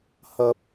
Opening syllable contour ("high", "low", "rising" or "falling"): high